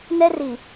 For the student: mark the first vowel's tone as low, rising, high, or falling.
high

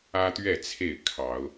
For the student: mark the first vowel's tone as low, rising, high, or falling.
high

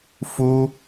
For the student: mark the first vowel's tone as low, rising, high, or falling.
high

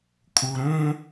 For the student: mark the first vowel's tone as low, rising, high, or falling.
low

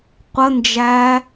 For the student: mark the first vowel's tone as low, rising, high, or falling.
high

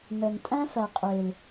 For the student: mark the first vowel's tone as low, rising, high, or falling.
low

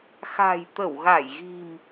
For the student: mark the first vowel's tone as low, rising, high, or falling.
low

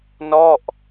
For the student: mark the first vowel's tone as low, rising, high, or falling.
falling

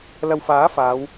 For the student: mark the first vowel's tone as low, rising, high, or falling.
low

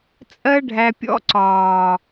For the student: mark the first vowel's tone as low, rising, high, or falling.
high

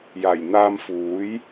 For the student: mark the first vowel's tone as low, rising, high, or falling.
low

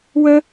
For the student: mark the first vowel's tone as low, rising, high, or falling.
high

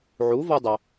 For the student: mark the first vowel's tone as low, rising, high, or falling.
rising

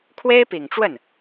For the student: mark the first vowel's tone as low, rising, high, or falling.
high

